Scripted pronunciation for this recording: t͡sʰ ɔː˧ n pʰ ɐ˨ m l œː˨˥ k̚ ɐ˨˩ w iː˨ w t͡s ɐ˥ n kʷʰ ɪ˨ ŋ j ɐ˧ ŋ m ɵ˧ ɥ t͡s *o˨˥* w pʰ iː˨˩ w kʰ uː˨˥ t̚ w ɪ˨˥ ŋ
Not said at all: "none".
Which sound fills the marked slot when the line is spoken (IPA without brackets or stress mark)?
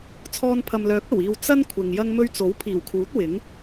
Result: o˨˥